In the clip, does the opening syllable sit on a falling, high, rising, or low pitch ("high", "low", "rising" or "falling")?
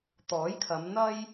rising